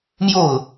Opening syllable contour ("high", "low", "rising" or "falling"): falling